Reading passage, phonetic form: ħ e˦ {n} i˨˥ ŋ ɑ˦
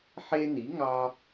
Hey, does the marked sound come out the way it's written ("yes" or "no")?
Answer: yes